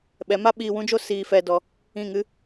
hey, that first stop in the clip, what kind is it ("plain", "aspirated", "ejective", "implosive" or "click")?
implosive